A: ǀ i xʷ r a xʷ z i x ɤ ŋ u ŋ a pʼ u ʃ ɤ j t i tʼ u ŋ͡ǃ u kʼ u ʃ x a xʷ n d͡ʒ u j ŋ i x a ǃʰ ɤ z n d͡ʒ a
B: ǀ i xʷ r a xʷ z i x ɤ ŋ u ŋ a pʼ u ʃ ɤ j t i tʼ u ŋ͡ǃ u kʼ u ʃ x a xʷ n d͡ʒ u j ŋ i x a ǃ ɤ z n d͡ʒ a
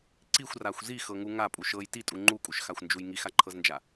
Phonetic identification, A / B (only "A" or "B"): A